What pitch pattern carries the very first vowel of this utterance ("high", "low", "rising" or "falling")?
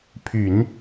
low